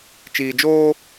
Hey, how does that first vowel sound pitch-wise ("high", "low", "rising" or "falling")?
low